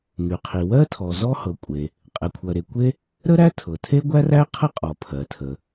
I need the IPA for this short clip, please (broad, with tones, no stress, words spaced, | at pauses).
ŋy˩qʰi˩wɜ˥ tʰɔ˩zɔ˥hɤ˩ kʷʼe˩ | qʼɛ˩kʷʰɜ˩ɾe˩ kʷe˥ | ɾə˥ɾæ˥ tʰɤ˩tʰe˥ɡʷæ˥ræ˥ qʰə˥qʼɔ˩ pʰɜ˩tʰə˩